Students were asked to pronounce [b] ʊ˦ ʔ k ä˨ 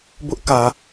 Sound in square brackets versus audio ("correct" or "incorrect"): correct